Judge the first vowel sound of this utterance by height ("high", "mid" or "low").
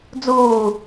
high